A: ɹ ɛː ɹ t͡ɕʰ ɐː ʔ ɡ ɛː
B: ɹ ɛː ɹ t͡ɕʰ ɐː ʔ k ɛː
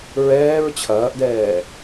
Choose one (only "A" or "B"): A